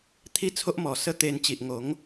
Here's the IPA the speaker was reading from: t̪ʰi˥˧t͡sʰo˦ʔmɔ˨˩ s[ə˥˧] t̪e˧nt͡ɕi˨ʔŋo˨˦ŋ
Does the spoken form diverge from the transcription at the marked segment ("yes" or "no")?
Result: no